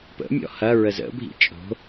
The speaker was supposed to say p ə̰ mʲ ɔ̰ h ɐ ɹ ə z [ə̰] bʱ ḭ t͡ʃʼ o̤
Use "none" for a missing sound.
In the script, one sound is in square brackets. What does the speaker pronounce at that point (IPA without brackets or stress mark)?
ə̰